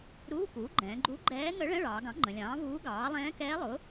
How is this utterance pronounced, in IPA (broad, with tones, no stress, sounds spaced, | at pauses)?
ɾ uː˧˥˧ k uː˩˥ ɡ͡ǃ ɛ̃ː˩˧ ɡ͡ǃ u˧˥ ɡ͡ǃ ɛː˧˥ ŋ ə˧˥ ɭ ɛ̃˧˥˧ ɭ ɑː˩˧ ɡ ɑ̃˩˥ ŋ͡ǃ ə̃˩˧ lʲ ɑ̃ː˩˥ v uː˧˥ ɡ ɑː˩˥ lˠ ɛ̃ː˧˥ k ɛː˧˥ lˠ ʊ˩˥